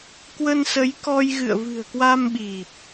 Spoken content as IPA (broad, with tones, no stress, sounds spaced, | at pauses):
k w ə˧ n s ə˨˦ j k ɔ˧ j ɣ ɨ̰˧˨ ə̯ v ɨ̤˨˩ ə̯ k w a˧ m ɓ i˨˩ p̚